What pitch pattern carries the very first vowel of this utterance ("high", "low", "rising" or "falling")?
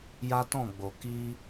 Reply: high